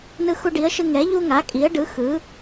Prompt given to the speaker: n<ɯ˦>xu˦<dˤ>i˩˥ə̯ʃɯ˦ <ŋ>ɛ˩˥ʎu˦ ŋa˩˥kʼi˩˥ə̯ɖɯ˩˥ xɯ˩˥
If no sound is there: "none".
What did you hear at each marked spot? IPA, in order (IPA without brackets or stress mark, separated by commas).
ɯ˦, ɖ, ŋ